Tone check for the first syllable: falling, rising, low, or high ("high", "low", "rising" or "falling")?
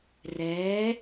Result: rising